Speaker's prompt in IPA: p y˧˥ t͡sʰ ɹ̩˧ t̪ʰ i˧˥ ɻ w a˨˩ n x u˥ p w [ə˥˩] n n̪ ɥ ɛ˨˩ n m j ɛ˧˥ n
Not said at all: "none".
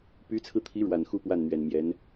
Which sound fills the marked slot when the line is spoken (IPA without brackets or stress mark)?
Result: a˥˩